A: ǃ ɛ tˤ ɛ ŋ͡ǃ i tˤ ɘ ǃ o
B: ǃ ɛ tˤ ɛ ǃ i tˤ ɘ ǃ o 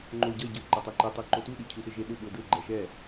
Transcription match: B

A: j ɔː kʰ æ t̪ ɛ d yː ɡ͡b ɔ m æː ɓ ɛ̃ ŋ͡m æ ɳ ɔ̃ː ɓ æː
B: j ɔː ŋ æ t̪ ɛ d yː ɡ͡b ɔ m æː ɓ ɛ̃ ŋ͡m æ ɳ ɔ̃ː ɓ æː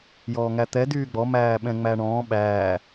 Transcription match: B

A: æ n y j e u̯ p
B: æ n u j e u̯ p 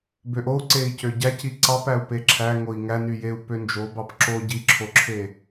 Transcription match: A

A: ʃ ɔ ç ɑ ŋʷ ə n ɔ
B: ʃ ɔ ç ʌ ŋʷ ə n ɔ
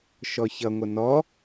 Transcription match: B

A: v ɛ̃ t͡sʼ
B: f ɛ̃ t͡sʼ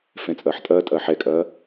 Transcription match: B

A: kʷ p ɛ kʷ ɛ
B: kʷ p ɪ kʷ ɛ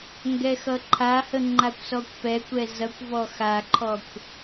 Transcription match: A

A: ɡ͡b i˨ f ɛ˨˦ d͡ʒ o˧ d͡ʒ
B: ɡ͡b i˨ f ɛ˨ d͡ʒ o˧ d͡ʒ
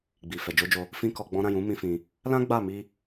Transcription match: B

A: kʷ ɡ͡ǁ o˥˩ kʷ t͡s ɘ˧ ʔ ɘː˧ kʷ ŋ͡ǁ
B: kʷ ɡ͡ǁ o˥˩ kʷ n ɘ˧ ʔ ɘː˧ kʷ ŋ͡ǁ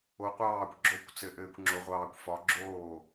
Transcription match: A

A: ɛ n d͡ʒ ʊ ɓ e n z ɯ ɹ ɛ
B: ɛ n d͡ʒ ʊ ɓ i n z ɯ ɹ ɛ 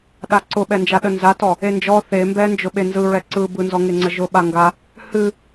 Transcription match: A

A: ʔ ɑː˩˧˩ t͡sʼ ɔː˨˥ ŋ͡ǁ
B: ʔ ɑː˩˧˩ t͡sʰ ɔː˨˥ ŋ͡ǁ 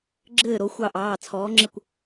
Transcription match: B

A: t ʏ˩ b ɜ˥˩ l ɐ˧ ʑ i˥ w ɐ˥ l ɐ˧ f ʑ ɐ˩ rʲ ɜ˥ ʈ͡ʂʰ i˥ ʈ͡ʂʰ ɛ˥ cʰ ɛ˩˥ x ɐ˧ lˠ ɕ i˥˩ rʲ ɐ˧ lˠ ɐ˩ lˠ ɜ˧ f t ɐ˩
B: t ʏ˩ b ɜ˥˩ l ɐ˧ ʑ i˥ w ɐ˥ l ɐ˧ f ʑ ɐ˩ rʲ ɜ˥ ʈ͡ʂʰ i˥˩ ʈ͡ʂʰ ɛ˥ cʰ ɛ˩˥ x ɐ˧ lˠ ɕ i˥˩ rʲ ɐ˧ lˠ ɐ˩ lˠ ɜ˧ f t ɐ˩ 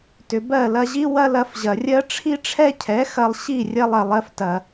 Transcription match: A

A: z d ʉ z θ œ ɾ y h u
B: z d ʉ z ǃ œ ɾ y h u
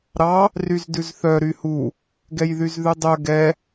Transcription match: A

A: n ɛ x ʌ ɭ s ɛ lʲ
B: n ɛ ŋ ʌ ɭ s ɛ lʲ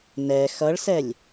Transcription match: A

